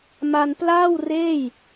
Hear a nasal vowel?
no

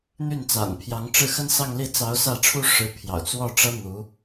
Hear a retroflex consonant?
yes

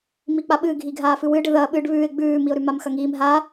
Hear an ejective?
no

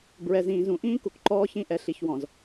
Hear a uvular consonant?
no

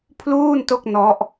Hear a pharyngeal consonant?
no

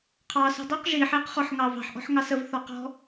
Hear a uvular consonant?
yes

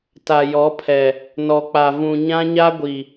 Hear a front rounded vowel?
no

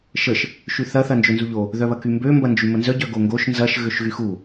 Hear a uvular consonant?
no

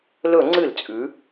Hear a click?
yes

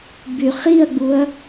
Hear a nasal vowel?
no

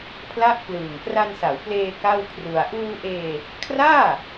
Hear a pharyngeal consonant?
no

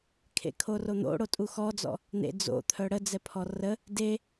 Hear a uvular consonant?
no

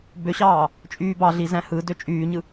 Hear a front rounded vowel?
yes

